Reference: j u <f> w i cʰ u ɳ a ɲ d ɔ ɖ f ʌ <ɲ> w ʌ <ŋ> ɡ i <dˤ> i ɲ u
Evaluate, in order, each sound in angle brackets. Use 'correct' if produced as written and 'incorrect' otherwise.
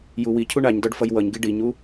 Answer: incorrect, incorrect, incorrect, incorrect

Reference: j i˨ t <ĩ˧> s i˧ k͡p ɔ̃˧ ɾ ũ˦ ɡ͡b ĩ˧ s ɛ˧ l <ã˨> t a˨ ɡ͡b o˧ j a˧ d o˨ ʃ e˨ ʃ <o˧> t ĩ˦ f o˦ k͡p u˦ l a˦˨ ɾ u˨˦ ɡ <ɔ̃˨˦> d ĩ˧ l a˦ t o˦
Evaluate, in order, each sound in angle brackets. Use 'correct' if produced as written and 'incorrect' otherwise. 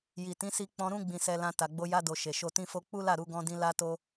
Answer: incorrect, incorrect, correct, incorrect

